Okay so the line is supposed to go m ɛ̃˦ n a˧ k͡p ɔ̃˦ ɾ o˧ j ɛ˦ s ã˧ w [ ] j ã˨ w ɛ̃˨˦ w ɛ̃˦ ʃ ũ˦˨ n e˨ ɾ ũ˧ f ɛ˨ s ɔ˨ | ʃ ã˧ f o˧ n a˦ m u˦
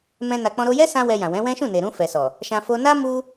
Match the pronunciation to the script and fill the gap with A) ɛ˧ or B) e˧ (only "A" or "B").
A